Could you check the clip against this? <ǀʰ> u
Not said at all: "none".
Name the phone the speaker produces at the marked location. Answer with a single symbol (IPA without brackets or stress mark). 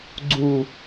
ɡ͡ǀ